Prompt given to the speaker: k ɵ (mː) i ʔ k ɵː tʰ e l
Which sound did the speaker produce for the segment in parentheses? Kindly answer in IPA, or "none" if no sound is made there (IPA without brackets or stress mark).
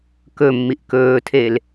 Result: mː